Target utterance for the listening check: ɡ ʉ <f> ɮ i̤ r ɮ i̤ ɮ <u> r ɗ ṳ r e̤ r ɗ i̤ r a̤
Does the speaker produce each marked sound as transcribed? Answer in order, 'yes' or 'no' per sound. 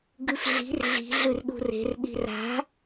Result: yes, no

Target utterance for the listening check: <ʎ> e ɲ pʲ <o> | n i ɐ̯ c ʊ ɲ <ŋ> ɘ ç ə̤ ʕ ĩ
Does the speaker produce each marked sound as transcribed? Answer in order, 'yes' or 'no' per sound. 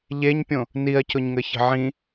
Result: yes, no, yes

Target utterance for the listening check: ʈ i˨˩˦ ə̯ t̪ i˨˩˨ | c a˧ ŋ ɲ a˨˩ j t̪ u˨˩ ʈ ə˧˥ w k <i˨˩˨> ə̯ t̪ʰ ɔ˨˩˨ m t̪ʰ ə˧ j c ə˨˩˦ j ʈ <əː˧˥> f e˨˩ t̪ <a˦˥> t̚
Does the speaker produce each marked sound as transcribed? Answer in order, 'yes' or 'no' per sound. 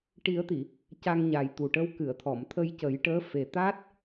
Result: no, yes, yes

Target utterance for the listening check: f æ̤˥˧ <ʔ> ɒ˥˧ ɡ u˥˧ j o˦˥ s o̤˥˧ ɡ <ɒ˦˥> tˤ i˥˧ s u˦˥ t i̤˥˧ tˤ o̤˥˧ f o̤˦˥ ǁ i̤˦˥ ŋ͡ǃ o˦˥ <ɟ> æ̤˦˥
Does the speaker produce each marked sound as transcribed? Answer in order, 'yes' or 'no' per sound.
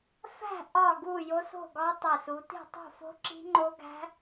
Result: yes, yes, no

